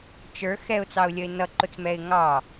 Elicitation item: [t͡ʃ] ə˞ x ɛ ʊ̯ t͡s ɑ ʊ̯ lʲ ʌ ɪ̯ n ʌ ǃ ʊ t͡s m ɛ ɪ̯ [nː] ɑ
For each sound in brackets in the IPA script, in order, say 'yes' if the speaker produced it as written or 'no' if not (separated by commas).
yes, no